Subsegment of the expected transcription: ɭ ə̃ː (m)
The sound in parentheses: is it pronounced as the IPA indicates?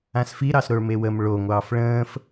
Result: no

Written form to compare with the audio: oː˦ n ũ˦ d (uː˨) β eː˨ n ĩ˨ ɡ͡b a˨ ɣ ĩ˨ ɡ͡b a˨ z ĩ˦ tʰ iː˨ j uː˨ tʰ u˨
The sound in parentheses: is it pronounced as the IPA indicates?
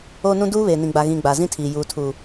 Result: no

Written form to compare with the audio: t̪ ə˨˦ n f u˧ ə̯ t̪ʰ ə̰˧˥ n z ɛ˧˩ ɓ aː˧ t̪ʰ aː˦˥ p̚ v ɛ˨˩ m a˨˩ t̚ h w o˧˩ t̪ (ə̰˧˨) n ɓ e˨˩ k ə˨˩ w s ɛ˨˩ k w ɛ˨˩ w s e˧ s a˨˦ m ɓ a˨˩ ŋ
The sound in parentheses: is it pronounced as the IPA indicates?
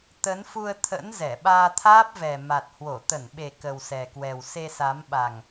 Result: no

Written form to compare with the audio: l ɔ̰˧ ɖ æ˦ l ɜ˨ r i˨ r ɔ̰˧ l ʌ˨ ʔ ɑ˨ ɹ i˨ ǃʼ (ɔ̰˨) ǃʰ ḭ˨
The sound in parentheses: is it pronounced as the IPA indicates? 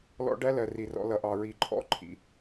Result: no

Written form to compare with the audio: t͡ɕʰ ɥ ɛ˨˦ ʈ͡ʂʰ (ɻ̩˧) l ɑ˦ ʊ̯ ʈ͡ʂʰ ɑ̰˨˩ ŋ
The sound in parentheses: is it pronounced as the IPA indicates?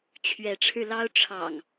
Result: yes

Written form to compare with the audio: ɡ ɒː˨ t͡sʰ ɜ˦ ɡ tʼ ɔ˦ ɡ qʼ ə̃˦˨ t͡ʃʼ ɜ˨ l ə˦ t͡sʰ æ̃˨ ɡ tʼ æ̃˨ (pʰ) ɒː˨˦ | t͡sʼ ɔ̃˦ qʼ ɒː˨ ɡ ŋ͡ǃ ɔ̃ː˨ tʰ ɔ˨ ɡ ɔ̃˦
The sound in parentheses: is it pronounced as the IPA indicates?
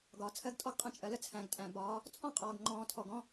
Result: no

